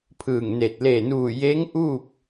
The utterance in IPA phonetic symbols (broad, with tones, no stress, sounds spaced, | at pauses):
pʰ ɯː˧˩ ŋ n e˧˩ t̚ l e˧˩ n uː˧˩ j e˧˥ ŋ ʔ uː˥˨ p̚